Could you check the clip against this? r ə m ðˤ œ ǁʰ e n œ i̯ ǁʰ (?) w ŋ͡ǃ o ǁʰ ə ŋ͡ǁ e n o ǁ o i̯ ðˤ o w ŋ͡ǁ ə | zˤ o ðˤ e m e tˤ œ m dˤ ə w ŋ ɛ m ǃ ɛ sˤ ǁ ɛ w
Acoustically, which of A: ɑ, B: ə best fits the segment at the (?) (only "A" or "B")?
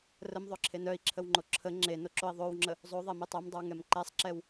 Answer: B